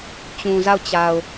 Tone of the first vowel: low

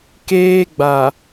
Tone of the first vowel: high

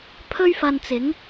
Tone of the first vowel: high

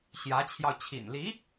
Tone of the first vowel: rising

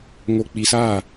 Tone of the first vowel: low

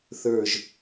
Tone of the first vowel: low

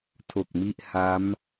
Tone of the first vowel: low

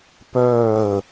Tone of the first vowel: falling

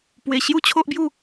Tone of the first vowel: low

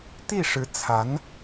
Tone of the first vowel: falling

